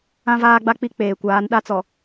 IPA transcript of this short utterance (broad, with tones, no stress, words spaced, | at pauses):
ã˦vaː˦ɡ͡ba˦k͡pi˦ k͡peː˨ kʷaː˨˦nɗa˦ t͡sɔ˨